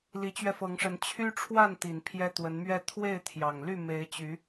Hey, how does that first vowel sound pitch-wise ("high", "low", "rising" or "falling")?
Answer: rising